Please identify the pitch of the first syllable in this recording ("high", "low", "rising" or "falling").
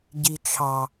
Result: low